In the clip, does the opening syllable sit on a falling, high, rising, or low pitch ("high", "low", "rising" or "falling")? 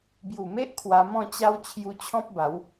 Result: low